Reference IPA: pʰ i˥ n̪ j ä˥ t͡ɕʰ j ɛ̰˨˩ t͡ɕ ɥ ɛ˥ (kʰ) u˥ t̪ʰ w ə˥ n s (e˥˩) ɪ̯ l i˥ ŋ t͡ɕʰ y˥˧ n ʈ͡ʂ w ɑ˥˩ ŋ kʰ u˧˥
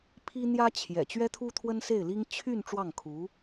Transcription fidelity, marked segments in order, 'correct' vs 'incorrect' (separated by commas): incorrect, correct